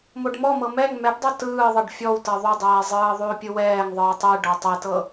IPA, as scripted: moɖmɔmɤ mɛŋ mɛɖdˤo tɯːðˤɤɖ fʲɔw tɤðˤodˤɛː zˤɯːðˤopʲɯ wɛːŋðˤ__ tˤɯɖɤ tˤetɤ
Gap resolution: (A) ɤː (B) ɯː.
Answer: B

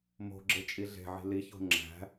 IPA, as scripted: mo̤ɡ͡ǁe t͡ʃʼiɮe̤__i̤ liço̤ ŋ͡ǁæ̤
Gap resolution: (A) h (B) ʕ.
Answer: B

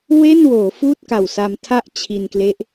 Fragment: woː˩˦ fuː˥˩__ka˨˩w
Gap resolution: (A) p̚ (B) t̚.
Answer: B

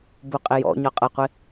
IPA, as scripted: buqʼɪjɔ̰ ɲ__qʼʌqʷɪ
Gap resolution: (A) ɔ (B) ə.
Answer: A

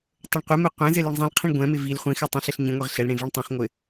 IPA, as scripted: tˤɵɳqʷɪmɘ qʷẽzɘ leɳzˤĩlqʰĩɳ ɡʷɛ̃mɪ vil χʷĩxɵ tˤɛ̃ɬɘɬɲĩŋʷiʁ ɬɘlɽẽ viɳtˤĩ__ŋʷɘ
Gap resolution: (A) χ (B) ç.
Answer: A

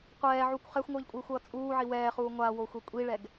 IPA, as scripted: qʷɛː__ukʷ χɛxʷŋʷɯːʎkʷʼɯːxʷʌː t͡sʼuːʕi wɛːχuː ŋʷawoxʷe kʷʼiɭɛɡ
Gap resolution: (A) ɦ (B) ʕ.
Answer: B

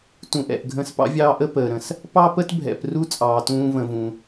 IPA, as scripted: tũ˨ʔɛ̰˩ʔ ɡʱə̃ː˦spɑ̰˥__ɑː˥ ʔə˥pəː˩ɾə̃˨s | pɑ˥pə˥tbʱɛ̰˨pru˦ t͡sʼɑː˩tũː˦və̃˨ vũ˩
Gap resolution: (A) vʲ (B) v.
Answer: A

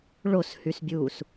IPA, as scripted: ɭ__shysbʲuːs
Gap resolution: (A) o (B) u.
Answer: A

